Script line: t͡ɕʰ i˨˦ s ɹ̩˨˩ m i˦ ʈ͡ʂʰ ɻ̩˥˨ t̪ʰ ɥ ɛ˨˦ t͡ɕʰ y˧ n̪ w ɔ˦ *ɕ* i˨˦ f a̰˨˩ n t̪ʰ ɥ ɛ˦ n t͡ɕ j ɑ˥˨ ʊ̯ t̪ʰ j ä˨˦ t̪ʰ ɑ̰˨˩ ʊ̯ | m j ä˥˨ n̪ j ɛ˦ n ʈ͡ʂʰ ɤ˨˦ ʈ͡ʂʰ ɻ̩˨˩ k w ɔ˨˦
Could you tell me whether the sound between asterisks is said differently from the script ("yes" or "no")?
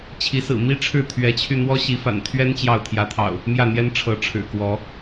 no